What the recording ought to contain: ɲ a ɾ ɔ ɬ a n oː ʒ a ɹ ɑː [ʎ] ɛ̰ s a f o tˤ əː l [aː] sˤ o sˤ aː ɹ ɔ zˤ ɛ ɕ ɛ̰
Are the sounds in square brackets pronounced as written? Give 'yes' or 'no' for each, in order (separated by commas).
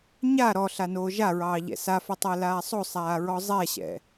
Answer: yes, yes